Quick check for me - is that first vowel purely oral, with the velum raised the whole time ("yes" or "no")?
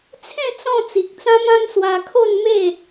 no